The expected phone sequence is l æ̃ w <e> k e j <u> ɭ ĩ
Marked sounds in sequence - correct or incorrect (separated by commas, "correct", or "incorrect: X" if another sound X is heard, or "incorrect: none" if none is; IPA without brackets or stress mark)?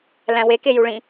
correct, correct